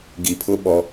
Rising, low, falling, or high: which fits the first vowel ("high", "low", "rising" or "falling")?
low